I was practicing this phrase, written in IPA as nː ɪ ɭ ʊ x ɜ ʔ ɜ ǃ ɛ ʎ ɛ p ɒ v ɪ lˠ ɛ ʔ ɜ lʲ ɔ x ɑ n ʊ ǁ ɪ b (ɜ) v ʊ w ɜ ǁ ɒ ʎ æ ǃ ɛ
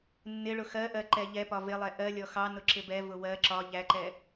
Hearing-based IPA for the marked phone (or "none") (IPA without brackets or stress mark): ɛ